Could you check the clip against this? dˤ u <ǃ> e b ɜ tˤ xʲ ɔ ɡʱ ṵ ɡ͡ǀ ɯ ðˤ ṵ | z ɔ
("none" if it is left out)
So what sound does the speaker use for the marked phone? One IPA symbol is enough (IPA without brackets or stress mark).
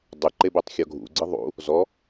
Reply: ǃ